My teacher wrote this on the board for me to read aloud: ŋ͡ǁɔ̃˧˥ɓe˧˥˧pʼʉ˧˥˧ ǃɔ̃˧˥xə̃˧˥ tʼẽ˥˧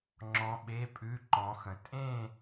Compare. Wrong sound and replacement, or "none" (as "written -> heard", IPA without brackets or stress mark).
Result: none